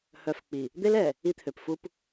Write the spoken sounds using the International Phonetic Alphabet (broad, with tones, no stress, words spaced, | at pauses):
hœ˨f k͡pi˨ | d̪e˦lɛ˨ | i˦t̪ʰø˨p fu˦p